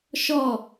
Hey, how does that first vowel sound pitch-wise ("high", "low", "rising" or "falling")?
falling